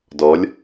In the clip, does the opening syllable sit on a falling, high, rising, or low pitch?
rising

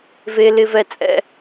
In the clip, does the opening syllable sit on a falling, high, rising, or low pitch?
high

